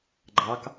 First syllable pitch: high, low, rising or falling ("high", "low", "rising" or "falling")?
rising